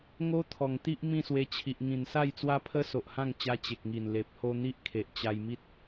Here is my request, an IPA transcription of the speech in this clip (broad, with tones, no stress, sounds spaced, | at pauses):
ŋ o˦ t̪ʰ ɔ˨˩ ŋ t̪ i˦ ʔ m ĩ˥˧ s w e˧ t͡ɕʰ i˨ ʔ ŋ ĩ˨˩ n s a˥˧ j t͡s w a˦ pʰ ə˦ s o˨ ʔ h ã˥˧ ŋ t͡ɕ a˧ t͡ɕ e˨ k̚ ŋ i˨˩ n l e˨ p̚ h o˧ n̪ i˦ ʔ kʰ e˨ ʔ t͡ɕ a˧ j m i˦ t̚